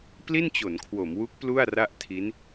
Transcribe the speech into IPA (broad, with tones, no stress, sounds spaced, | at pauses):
p l i˥˩ n t͡ɕ o˩˦ n kʰ w o˩˦ m w u˦˥ k̚ p l u˥˩ a̯ r a˥˩ ʔ tʰ i˦˥ n